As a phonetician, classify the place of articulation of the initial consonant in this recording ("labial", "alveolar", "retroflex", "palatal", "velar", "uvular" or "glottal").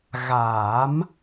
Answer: velar